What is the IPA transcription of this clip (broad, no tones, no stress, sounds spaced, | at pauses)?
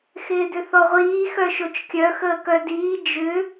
x ɪː d ʏ θ ɔ ʁʷ iː x œ ʃ o t͡ʃ kʲ œ x əː k œ d iː d͡ʒ ʏ